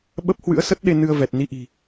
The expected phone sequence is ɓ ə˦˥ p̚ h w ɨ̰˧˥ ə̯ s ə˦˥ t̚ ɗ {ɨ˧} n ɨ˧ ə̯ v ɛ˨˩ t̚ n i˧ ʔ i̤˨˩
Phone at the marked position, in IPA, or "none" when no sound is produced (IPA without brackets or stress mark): e˧